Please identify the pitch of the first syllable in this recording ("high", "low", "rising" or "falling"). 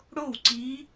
falling